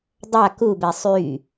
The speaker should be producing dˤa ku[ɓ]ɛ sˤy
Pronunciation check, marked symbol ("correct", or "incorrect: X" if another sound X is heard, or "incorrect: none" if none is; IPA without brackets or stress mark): incorrect: b